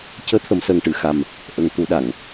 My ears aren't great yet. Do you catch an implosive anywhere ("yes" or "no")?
yes